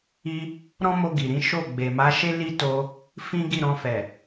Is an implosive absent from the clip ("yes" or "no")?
yes